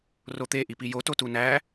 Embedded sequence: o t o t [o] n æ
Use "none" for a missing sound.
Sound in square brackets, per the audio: u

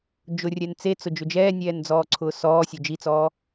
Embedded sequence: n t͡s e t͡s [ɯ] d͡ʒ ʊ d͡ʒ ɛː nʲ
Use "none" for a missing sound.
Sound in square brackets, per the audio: ʊ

